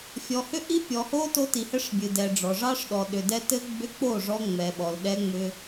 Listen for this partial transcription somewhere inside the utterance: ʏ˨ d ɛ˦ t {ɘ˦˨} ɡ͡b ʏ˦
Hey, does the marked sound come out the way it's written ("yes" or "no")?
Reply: no